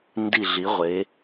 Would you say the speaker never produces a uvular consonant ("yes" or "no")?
no